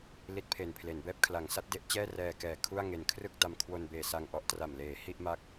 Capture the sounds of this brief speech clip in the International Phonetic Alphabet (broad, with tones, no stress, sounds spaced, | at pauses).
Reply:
l i˦˥ t̚ pʰ e˨˩ n pʰ l e˩˦ n b ɛː˦˥ p̚ kʰ l a˩˦ ŋ s a˦˥ t̚ d e˥˩ ʔ t͡ɕ ɛː˥˩ r ɛː˧ k ɛː˨˩ kʰ u˥˩ a̯ ŋ e˨˩ n kʰ r ɯ˥˩ k̚ d a˧ m kʰ w o˧ n b eː˨˩ s a˧ ŋ ʔ ɔ˦˥ ʔ t r a˨˩ m l eː˩˦ h i˥˩ ʔ m a˦˥ k̚